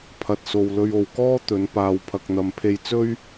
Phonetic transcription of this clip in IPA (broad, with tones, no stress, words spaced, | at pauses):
pʰɐ˨t̚so˨w lɵ˧ɥo˨wkɔː˥ t̪ɵ˨˧n paː˨wpʰɐ˨k̚n̪ɐ˨mpʰe˧j t͡sɵ˥ɥ